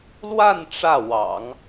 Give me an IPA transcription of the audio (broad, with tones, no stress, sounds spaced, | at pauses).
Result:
l w a˥˧ n ʈ͡ʂ ä˥˩ w ɑ̰˨˩˦ ŋ